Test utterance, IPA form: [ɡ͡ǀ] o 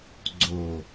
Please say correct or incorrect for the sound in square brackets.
correct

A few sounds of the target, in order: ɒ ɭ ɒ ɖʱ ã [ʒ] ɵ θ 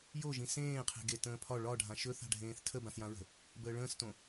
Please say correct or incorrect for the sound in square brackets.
incorrect: ʃ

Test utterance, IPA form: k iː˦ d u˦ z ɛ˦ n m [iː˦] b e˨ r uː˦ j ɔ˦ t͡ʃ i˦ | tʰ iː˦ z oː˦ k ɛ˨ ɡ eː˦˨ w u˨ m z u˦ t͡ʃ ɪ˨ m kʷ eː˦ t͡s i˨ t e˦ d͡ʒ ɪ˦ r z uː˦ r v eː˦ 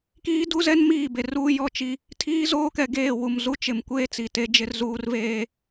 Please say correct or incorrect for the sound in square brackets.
incorrect: iː˦˨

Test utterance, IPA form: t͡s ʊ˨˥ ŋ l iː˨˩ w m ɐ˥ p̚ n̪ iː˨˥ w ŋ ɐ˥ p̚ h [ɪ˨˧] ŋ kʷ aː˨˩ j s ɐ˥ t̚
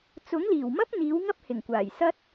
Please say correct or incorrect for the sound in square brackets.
incorrect: ɪ˨˩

